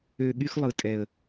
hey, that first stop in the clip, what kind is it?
implosive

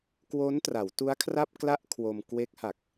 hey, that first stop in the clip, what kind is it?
plain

